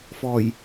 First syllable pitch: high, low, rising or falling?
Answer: low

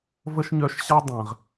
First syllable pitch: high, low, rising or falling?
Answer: high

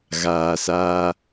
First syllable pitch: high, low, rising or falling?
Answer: low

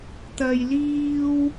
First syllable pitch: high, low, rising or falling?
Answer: low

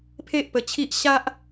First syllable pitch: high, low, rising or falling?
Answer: high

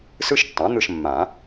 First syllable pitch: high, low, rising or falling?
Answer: high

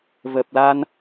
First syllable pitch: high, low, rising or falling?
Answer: low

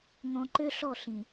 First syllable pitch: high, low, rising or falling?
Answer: low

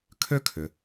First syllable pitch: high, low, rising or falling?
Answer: high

